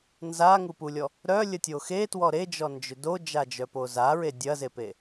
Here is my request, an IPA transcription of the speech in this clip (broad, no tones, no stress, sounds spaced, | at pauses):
n z a ŋ u p u lʲ ɔ | ɾ œ lʲ ə tʲ o x e t w ɔ ɾ e d͡ʒ ɔ n d͡ʒ ʏ d o d͡ʒ a d͡ʒ œ p o z a ɹ e dʲ ɐ z e p e